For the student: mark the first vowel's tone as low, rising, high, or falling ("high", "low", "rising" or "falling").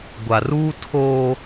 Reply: low